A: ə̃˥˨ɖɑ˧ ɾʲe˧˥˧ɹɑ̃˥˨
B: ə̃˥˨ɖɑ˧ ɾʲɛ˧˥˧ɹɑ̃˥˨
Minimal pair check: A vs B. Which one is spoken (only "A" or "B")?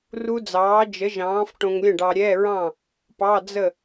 B